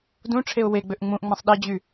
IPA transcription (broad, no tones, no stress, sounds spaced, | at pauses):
d ũ ʈ͡ʂʰ e ʊ̯ w e ɡ͡b ø ʔ ŋ͡m ũ ʔ ŋ͡m ã sˤ ɗ i d͡ʑ y